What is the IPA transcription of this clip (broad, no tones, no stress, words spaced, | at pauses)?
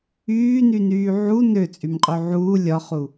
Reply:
yːnynyː ʕu nøt͡sʼymqʼø ʕuː lʲɒχu